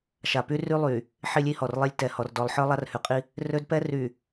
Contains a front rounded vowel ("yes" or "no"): yes